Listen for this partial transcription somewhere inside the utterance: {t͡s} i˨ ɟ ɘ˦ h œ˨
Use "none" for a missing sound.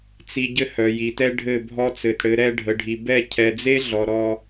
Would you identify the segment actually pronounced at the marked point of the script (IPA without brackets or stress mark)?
t͡s